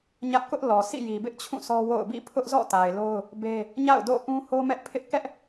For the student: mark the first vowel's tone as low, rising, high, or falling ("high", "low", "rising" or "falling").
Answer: high